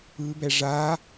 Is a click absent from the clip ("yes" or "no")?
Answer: yes